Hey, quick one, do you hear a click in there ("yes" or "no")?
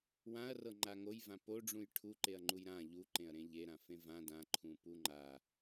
yes